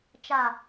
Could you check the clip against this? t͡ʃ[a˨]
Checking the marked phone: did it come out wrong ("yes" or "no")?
no